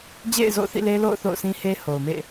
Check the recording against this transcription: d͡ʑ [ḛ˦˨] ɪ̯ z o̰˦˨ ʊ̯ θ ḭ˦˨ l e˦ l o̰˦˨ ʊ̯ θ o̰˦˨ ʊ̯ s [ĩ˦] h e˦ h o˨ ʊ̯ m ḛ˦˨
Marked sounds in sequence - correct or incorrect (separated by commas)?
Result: correct, correct